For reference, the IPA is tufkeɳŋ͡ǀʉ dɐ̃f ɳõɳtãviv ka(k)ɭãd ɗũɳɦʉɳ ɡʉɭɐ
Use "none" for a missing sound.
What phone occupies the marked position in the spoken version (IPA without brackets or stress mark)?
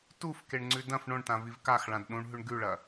x